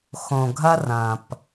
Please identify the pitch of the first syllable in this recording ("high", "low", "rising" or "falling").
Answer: low